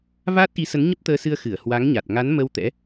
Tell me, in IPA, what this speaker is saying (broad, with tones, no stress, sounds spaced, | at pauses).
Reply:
v aː˦˥ t̚ ʔ i˨˦ s ə˨˦ n ɲ ə˦˥ p̚ t̪ əː˧ s ɨ˧ ə̯ x ɨ˧˩ ə̯ h w a˨˦ ŋ ɲ a˨˩ t̚ ŋ a˨˦ n m ə˧ w t̪ ɛ̰˧˥